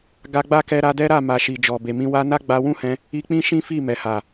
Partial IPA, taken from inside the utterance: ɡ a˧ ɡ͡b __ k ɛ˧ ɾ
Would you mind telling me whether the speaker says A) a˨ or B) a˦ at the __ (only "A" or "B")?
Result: B